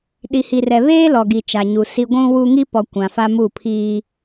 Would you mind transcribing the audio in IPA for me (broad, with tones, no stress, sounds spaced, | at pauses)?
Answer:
ɗ i˨ h i˨ r ɛ˨ β eː˦ l ɔ˨ ɡ i˨ t͡ʃ a˨ ɲ u˨ s i˦ ɡʷ ũ˦ w u˦ ŋ i˦ p ɔ˨ kʷ ã˨ f a˦ m u˦˨ pʰ iː˦